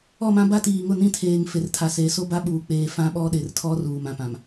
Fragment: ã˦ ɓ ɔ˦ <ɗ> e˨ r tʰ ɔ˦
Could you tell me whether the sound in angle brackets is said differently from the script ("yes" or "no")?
no